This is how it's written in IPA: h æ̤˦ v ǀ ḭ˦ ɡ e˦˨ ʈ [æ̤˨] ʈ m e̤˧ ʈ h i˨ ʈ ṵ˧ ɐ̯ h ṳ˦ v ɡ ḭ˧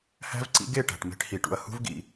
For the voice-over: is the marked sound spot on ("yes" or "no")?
yes